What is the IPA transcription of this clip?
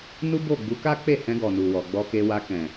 n u˦ b o˦˨ ɡ͡b u˨˦ k a˦ k͡p e˦˨ h ɛ̃˧ ɡ ɔ˨ n u˨ w ɔ˨ ɡ͡b ɔ˧ k e˧ w a˧ k ɛ̃˨

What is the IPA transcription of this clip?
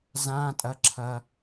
z ã tʼ ɐ ǁʰ ɐ

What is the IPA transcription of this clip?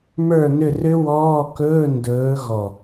m ə˞˦˨ n ʏ˦˨ r ʏ˦˥ w ɔː˧˥˧ k ɵː˧˥˧ n d ɵː˨˦ ɣ ɔ˨˩

